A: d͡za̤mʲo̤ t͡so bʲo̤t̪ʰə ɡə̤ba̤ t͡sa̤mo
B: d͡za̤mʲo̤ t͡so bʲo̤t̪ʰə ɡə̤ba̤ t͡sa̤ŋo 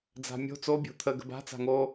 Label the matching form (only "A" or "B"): B